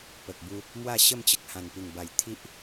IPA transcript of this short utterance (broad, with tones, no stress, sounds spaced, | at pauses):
p ə˨ k̚ b u˧ | m w a˥˧ ɕ ə˥˧ m t͡ɕ ə˨ k̚ h ã˨˩ n p i˨˩ ŋ b a˨˩ j t̪ʰ i˦ ʔ